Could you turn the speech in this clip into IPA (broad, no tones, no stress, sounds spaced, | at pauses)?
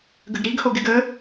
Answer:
ɡ ə ɡ ɾ i ɡ h o ɡ ɪ ɡ ə